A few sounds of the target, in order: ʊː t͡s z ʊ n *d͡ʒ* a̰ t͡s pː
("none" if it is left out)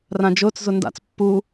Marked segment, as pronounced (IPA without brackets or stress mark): d